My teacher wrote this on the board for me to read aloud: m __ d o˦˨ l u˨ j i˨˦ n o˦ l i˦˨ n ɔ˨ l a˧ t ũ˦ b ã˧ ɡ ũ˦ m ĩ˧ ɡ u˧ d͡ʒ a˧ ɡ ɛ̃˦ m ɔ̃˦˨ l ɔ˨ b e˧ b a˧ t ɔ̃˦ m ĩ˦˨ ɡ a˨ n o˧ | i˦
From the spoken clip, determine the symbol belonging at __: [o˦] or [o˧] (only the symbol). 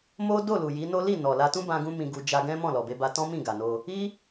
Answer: o˦